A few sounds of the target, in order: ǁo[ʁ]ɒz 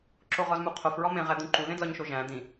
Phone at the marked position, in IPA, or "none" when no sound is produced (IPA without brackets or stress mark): ʁ